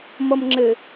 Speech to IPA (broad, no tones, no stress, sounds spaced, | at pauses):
m ʌ m ŋ͡ǁ ɘ